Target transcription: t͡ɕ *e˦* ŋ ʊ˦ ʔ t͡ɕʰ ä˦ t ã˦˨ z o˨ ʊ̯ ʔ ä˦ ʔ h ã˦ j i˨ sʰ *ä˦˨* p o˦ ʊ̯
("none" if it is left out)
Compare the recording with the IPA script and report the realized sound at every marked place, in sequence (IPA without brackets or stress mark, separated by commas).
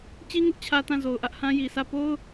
i˦, ä˦˨